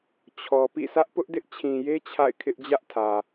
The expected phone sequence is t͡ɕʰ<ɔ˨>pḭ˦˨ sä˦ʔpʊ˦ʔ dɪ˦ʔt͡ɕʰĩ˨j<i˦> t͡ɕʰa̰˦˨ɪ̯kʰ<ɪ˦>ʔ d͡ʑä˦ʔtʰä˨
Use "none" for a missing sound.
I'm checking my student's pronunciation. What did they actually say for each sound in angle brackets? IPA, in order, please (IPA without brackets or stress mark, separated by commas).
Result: ɔ˨, e˦, ɪ˦